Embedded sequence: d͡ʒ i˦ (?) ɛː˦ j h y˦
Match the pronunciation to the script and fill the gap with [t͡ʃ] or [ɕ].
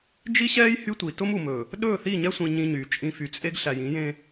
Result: ɕ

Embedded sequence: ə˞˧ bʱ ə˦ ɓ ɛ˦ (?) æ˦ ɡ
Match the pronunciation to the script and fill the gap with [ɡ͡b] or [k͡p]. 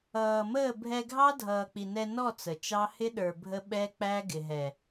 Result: k͡p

